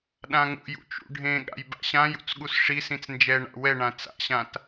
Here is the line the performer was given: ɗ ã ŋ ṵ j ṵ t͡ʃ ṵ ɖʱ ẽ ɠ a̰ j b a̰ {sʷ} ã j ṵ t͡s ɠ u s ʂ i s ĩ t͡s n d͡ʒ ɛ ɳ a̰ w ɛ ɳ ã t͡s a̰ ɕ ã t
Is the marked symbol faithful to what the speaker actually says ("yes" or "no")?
no